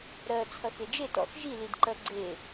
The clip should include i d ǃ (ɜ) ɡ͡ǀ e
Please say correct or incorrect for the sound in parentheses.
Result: correct